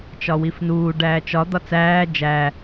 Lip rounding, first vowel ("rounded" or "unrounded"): rounded